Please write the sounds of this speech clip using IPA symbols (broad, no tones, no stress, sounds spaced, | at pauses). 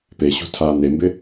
p e ɕ ṳ tʰ aː n e m b ɪ